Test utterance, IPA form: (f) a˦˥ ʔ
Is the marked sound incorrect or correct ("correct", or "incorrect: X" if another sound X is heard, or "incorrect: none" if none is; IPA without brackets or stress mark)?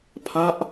incorrect: pʰ